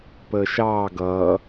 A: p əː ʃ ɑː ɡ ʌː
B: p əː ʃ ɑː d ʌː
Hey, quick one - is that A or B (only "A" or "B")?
A